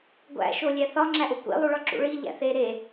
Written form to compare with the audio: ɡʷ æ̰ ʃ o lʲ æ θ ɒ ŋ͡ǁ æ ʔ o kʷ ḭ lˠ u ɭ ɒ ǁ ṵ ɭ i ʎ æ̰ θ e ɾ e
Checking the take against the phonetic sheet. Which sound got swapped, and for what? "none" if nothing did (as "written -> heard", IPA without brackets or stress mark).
none